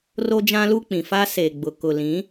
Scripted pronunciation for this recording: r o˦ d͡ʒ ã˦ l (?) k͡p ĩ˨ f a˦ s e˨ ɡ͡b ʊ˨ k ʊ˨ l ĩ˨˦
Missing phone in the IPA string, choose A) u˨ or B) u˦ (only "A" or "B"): B